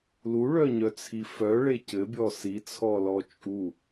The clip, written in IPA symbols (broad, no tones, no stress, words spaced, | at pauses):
luɭœɲœt͡sʰi fœɭe cɘbʲɔ sit͡sʰɔlɔ t͡ʃʼu